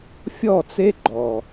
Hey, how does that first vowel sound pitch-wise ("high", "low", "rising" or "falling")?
falling